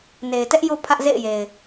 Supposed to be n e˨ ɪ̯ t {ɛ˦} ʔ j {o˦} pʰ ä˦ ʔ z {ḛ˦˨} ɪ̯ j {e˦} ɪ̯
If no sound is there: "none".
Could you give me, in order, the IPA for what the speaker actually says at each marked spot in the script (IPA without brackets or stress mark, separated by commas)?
ɛ˦, o˦, ḛ˦˨, e˨